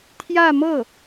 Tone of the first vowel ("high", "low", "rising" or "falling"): falling